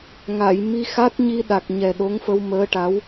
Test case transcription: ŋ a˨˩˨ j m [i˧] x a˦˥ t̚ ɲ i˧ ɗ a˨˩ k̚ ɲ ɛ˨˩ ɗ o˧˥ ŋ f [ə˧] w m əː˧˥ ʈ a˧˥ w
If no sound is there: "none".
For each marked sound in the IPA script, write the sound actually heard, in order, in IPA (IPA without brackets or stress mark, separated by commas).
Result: i˧, ə˧